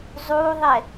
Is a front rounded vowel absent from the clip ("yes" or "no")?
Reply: yes